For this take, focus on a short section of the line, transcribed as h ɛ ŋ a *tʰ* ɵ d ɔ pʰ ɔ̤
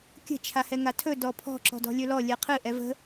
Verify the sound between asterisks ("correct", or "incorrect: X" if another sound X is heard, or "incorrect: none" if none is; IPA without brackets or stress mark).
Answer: correct